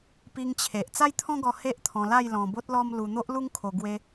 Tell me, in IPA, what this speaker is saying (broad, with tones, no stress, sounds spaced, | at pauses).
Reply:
p i˧ ŋ t͡ɕʰ e˨ ʔ t͡s a˦ j t̪ʰ ɔ̃˦ ɡ ɔ˧ h e˦ ʔ t̪ʰ ɔ̃˧ l a˥˧ j l ɔ̃˧ b o˦ t̚ l ɔ˦ m l u˧ n̪ o˦ ʔ l u˦ ŋ kʰ o˧ ɡ w e˦